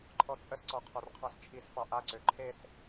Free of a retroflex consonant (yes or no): yes